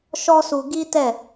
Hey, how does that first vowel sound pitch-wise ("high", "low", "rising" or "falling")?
high